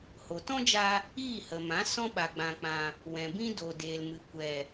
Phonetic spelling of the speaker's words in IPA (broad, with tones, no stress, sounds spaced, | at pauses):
h o˨ t ɔ̃˦ d͡ʒ a˧ | iː˦˨ h ə˨ m ã˨˦ s ɔ̃˦ ɓ a˨ ɡ͡b ã˨ k͡p ã˨ | w ɛ̃˨ b ĩ˦ d o˨ d eː˨ l m ɨ˨ kʷ ɛ˨